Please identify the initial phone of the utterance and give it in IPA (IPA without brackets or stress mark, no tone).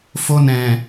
f